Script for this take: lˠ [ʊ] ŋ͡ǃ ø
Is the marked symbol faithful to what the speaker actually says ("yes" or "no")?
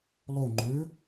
yes